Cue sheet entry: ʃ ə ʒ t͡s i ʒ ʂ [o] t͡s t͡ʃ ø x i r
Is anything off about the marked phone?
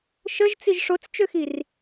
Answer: no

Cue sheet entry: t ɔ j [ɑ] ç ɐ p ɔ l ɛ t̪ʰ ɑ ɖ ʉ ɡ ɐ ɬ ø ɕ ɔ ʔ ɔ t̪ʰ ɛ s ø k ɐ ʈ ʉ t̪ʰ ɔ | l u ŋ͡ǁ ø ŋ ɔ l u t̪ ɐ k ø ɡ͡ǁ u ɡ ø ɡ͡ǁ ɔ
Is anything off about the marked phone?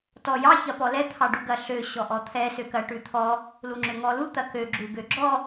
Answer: no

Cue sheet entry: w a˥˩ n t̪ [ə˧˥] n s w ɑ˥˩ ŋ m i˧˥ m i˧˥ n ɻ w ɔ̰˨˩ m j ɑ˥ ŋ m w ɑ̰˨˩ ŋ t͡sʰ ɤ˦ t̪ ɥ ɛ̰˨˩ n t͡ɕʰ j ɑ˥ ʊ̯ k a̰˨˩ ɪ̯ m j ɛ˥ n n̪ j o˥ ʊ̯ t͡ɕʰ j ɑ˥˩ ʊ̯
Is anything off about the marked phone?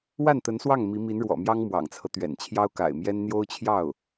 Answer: no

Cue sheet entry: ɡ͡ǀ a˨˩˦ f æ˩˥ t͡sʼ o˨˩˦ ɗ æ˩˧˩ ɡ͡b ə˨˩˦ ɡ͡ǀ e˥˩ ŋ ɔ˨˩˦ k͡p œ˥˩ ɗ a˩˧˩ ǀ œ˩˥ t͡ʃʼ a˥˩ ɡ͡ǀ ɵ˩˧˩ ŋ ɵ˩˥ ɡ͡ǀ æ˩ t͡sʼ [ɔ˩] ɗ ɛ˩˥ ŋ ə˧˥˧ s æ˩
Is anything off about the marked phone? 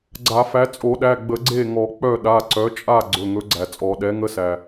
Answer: yes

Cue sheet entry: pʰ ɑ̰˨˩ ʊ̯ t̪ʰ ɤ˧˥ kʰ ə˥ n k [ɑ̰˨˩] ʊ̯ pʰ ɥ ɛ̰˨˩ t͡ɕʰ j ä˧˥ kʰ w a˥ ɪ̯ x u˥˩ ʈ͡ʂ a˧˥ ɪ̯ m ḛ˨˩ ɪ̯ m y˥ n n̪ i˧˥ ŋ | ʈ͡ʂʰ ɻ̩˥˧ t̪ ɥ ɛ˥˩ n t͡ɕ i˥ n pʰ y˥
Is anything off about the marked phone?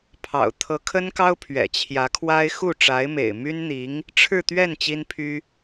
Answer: yes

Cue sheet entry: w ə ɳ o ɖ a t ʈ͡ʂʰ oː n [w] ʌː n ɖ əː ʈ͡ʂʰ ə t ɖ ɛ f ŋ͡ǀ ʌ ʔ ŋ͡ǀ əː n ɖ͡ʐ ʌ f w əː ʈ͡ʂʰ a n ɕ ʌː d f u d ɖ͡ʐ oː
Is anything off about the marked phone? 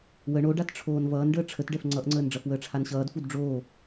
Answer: yes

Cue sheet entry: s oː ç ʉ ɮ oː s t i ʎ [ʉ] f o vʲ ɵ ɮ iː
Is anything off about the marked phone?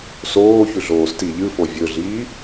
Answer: yes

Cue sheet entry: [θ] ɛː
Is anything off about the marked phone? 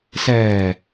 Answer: yes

